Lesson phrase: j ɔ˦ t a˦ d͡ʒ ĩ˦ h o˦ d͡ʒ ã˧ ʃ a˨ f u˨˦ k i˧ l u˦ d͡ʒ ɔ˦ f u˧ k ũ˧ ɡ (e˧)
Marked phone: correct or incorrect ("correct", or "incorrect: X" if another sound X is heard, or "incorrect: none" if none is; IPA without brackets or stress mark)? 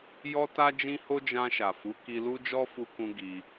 incorrect: i˧